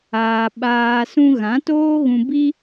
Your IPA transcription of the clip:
aː˨ ɓaː˨ sũ˧ɣã˨˦toː˦ɣũ˧ bi˦

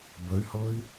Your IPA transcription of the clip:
bəy̯hɤi̯

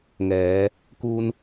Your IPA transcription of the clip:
ŋɛː˩˧ | ku˧n

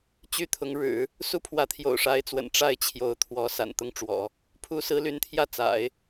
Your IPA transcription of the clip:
t͡ɕy˥t̪ʰʊ˧˥ŋ ɻɻ̩˨˩˦ | su˥pʰwä˧˥t̪ʰjo̰˨˩ʊ̯ ʂa˧˥ɪ̯t͡swə̰˨˩n ʈ͡ʂa˥˩ɪ̯t͡ɕʰjo˧˥ʊ̯ t̪ʰwɔ˧˥ sa̰˨˩nt̪ʊ˥ŋ ʈ͡ʂwɔ̰˨˩˦ | pʰu˧˥sɹ̩˧˥ly˧˥nt̪ʰjä˥˩ t͡sa̰˨˩˦ɪ̯

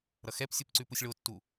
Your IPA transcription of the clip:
ɾʌxɛpsʲup ǀʉpusʲɭotːu

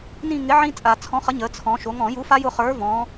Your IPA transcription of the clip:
nĩ˦˨ŋɪ˨˥ʕĩ˦˥ t͡sʼa˧˩˧t͡sʰɔ̃˨˥χə˨˥ ɲə˩˧t͡sʰɔ̃˩˧ ʃo˩˧ŋɔ̃˧˩˧ju˨˥fa˦˥ jʊ˦˨χə˞˨˥ vɔ̃˩˧

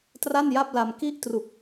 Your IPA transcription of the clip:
tra˥˩nja˥˩p̚la˧m ki˥˩ʔtru˨˩k̚

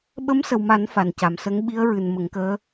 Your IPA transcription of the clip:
ɓə˧˥msə˨˩wma˨˩˦n fa˨˩nca˨˩msə˧˥ŋ ɓi˧˥ə̯ɹɨ˨˩n mə˨˩˦ŋkəː˧˥

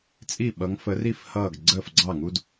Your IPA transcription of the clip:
t͡sʼi˥˩ɓʌ˨˦ŋ fə˨˦ri˥˩f hʌː˥˩ɡ ɡ͡ǀəː˥˩fɡ͡ǀɑ˥˩ŋu˦d

